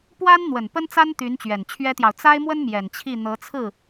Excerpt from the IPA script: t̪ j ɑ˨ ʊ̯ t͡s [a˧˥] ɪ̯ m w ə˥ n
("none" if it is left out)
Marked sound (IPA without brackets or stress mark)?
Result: a˥